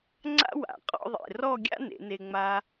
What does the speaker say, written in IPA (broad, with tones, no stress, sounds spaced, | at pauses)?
ŋ͡ǀ a̰˥ w a̰˩˧ qʼ ɔ̰˥˧ ðˤ ḛ˧˩ r ɔ˥˧ ɡʲ a̰˥ n ḛ˩˧ n e˧ ŋ͡m a˧